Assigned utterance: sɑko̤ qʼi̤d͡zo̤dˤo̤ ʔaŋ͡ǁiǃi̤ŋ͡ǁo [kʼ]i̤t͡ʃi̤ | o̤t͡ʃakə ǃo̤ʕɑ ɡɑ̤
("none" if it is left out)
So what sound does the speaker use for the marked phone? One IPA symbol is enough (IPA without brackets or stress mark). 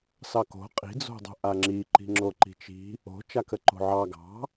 ǃ